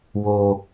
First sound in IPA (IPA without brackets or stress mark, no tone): w